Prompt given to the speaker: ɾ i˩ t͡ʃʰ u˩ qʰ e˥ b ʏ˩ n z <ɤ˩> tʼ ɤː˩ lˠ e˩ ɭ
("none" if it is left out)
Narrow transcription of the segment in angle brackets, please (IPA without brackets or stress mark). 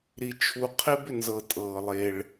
ɤ˩